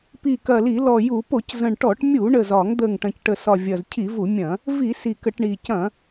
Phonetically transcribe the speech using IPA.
pi˨˩kɐ˨˩ li˧˩˧lɔ˨˩ju˧˩˧ po˧˩˧czə̃˨˩ɳʈɔ˧˩˧ʈmʲu˧˩˧ ɳə˨˩zɒ˧˩˧ŋd̪ə˨˩ŋ ʈɐ̃˨˩cʈə˨˩sɒ˨˩ vʲɐ˨˩zcʰi˧˩˧vu˧˩˧mʲɐ̃˧˩˧ | vi˧˩˧ si˨˩kə˧˩˧ʈɳi˨˩ cɐ̃˧˩˧

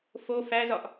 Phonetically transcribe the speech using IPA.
fo fæzɒʔ

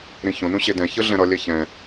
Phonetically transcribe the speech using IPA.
ɾĩçõnũ ɕedɛ̃çɯɮɛ̃ ɾʌ lʲɛçɛ̃

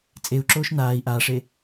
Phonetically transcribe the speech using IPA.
t͡sʼeu̯ǁoːʃ naːi̯ ʔaːʂe

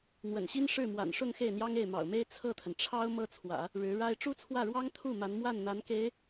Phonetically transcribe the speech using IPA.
n̪wə̰˨˩nɕi˥nʂɻ̩˥˩ mwa̰˨˩nʂʊ˥˧ŋ xe˥˩ɪ̯n̪jɑ˥ŋe˥˩ɪ̯ mɑ̰˨˩ʊ̯me˥ɪ̯ t͡sʰɤ˥˩t̪ʰə˩n ʈ͡ʂʰɑ˥ʊ̯ mɤ˥t͡sʰwä̰˨˩˦ | ɻɻ̩˧˥ɻa˥ɪ̯ ʈ͡ʂu˥t͡sʰwä˥˩ɻwɑ˥ŋ t̪ʰu˥˩ ma˧˥nmwa˥˩nn̪a˧˥n ke˧˥ɪ̯

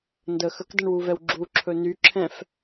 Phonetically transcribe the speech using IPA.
ndə xəkdəɳwuvɛw ɡ͡ǁuǁʰɵ nyǁʰɛ̃f

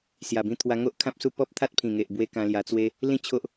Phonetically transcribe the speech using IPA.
sja˨˩bĩ˧t̪ʰwa˧ ŋo˦ʔkʰã˦p̚su˦ pɔ˦p̚ t̪ʰa˦t̚pʰĩ˨˩ŋe˨ʔbwe˧ kã˧lja˧t͡swe˦ | lĩ˥˧t͡ɕʰo˦ʔ

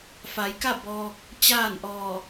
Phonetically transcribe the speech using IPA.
fa˩˧jka˥˨ bɔː˧k̚ | t͡ɕaː˥˨nʔɔː˧˩

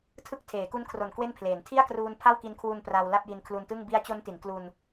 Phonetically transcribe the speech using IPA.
tʰɯ˥˩k̚ tʰeː˩˦ku˦˥nkʰro˨˩n kwe˥˩npʰleː˩˦n tʰi˥˩a̯kruː˧n pʰa˥˩wki˧nkʰwu˧n pra˧w la˥˩p̚ji˧nkʰlu˧ntɯ˥˩ŋ bi˦˥a̯t͡ɕo˦˥nti˩˦n klu˧n

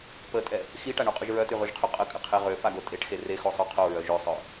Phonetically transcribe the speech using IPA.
pətʼɛ | xiʈaɳoqʼyʒ ɹœtyʁyʒqʰy qʼəkʼəqʰe ʁøfaɡo tʼeʈxe rexosˤø qʰoɹœ ʒøsˤœ

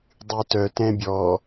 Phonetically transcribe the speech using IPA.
dˤytœ tɛ̃bʲɔ

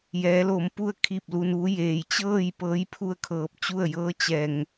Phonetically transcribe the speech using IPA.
jɛː˩˧lo˩˧mpu˧ə̯ kʰiː˥˨p̚lu˧nʋu˧˥ jeː˩jt͡ɕɤː˥˨j pɤː˧˥jpʰu˥˨ə̯kʰɤː˧˩p̚t͡ɕu˥˨ə̯ jɤː˧˥ t͡ɕɛː˩ŋ

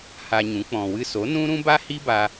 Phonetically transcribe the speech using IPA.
ha˧ɲũ˨˦ k͡pɔ̃˨wɨ˧so˨˦ nũ˦ɾũ˦ba˦ hi˦ba˧

